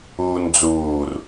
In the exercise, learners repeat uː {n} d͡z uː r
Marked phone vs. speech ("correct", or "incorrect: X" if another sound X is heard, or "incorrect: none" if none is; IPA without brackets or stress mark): correct